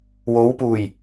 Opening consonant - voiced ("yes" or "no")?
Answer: yes